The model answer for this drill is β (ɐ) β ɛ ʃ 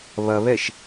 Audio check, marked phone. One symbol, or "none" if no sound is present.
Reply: ɐ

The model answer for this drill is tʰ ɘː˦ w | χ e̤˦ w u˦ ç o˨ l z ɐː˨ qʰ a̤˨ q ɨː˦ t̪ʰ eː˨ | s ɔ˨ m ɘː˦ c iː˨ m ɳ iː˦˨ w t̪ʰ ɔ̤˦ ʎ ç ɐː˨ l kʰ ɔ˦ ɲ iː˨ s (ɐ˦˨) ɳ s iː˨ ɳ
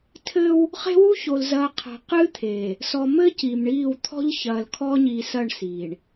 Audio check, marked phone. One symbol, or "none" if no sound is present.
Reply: ɐ˦˨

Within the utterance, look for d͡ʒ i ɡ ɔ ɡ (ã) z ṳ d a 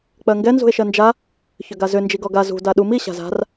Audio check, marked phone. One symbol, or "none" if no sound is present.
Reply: a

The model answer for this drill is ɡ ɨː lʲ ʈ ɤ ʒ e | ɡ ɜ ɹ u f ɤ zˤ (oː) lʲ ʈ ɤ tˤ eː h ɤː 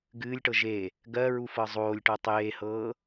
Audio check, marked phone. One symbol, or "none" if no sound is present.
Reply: oː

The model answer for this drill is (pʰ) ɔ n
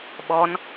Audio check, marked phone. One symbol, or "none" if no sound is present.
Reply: ɓ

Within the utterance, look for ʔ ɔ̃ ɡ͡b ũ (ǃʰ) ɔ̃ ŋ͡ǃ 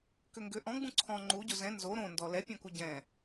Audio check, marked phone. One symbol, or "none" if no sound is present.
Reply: ǀʰ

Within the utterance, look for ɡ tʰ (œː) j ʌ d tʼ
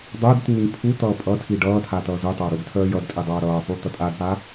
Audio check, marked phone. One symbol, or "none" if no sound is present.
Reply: œː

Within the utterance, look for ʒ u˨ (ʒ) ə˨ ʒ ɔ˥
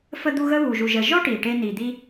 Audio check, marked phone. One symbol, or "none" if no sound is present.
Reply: ʒ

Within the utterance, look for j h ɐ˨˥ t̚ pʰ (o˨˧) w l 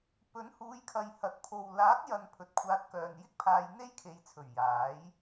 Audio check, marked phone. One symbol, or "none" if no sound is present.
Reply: o˨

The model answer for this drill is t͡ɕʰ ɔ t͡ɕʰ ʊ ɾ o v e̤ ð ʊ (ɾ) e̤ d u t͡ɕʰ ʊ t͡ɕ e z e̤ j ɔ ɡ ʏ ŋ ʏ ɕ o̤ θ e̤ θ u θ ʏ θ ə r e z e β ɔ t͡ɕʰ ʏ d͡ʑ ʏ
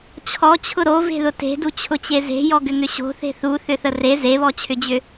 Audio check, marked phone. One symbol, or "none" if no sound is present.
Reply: t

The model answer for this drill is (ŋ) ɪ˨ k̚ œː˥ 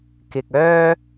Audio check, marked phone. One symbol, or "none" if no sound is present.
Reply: k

